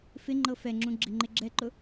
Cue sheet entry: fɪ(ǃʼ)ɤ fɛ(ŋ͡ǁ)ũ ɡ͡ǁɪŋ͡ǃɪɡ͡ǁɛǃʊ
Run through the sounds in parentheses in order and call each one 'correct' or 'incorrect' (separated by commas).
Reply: incorrect, correct